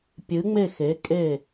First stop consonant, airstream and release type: plain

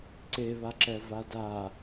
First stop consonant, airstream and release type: click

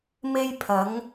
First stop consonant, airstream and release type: aspirated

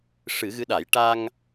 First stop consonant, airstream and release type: implosive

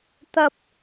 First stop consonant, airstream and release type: plain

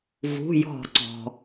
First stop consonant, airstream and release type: click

